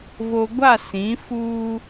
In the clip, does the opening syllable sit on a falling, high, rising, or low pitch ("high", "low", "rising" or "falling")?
low